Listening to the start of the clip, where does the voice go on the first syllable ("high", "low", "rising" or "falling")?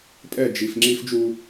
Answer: falling